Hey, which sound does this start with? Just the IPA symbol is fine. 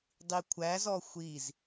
dˤ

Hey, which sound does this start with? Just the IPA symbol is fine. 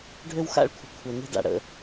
ɖʱ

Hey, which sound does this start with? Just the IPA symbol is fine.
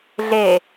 ɮ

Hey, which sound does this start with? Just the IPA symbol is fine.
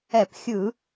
ɛ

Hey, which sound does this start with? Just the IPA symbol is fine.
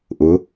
ʔ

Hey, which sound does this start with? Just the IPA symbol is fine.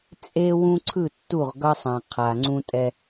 t͡sʼ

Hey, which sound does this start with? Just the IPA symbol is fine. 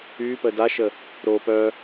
y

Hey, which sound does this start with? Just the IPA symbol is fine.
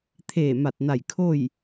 t̪ʰ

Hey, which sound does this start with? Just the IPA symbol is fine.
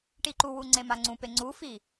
ʈ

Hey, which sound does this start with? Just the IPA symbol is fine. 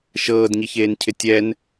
ʃ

